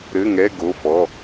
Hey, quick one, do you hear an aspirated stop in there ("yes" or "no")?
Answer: no